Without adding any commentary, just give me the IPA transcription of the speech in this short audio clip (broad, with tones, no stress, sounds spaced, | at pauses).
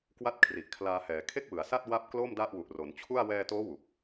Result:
k w a˥˩ t̚ kʰ r i˨˩ ʔ kʰ l aː˧ h ɛː˩˦ kʰ e˥˩ k̚ w ɯ˩˦ a̯ s a˥˩ t̚ w a˥˩ p̚ k l o˥˩ m d a˥˩ ʔ w u˨˩ ʔ r o˩˦ n t͡ɕʰ u˥˩ a̯ w ɛː˧ t oː˦˥ w u˨˩ k̚